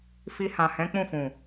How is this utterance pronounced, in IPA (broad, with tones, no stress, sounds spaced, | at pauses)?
f i˧ h ã˨ h ɛ̃˨˦ k͡p ũ˦˨ f ũ˨